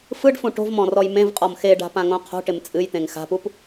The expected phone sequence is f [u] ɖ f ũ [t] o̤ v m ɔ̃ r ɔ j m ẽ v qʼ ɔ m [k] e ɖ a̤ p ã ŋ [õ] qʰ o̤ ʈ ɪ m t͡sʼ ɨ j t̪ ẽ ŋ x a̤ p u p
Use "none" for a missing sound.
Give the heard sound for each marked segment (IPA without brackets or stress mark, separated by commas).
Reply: ɯ, ʈ, x, õ